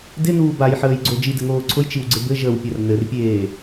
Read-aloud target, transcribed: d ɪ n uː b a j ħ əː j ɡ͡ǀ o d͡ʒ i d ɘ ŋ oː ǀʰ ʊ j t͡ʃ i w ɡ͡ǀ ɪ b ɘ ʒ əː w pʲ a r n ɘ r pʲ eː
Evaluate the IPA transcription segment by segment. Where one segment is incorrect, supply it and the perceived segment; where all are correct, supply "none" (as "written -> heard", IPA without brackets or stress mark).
none